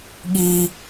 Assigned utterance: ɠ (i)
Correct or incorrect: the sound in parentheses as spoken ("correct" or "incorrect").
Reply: correct